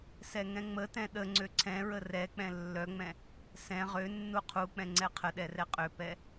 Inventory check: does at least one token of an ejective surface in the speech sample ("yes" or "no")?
yes